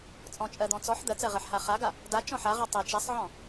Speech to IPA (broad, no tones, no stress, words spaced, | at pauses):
t͡sʼɔ̃t͡ʃʼɜd̪ɔ̃ t͡sɔħ d̪ɜt͡sɜʁɜħ haχaɡa | da t͡ʃɔ̃ħaʁɔ tˤɛ t͡ʃasˤʕɔ̃